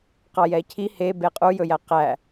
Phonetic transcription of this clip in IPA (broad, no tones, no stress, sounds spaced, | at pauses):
q ɑ j ɛ cʰ i h e b e qʼ u j ɵ j æ q æ